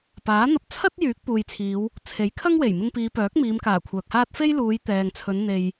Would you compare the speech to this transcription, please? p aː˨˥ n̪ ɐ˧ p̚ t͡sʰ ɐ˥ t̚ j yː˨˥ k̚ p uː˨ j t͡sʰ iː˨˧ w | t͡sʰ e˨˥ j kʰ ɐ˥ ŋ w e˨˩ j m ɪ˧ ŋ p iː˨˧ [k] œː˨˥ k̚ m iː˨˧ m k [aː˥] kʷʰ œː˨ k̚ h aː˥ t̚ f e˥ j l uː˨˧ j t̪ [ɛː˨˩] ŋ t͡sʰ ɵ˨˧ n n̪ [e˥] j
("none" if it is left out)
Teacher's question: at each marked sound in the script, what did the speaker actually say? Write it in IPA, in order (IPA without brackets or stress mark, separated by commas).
p, aː˨˩, ɛː˨, e˨